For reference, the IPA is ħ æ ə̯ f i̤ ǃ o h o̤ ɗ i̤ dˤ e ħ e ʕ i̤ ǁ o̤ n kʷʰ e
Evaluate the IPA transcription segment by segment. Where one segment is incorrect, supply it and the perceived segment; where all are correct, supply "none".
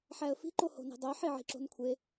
ɗ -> n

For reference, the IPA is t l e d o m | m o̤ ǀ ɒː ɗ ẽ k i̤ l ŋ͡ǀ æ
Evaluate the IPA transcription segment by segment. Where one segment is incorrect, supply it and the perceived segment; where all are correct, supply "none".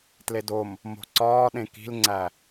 none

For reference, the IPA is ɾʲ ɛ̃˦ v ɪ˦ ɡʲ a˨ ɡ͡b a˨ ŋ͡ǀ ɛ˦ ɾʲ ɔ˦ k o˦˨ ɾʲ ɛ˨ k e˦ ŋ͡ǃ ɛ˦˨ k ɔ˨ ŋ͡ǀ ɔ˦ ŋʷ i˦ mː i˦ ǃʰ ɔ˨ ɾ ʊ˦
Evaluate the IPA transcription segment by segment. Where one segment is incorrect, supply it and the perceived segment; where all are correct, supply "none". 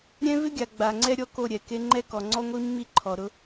none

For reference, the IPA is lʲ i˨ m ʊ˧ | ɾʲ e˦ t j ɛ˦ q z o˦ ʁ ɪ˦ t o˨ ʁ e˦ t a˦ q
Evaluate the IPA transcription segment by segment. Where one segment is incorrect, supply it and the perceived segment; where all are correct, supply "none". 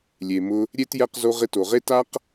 i˨ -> e˨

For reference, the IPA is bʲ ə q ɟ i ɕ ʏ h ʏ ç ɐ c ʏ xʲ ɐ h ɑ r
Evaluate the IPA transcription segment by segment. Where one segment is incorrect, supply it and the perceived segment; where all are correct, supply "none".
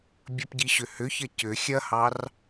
q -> p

